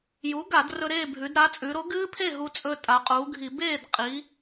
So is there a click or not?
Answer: no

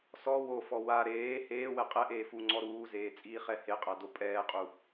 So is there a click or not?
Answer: yes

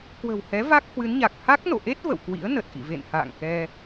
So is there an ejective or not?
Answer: no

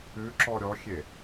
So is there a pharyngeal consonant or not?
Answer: no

